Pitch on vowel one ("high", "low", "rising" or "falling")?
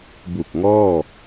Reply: low